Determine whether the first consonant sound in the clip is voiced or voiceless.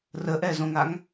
voiced